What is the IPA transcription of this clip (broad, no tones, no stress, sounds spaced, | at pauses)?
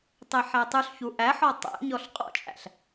tˤ e ħ æ tˤ ʉ ɬ ç u ʔ æ ħ ɔ tˤ æ̰ ɲ ɔ ɬ qʼ ɔ̰ t͡ʃʼ æ̰ ɬ